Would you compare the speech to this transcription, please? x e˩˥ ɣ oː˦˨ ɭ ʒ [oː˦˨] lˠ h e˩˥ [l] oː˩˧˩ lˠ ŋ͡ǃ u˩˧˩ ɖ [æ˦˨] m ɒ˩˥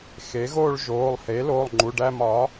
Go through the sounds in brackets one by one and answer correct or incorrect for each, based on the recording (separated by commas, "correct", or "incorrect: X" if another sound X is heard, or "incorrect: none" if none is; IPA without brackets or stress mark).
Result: incorrect: oː˩˧˩, correct, correct